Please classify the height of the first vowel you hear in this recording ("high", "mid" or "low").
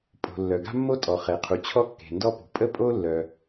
mid